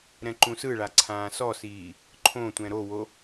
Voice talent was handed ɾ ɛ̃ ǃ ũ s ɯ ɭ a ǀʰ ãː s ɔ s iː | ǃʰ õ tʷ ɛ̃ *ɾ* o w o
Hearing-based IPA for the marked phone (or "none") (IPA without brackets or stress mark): ɾ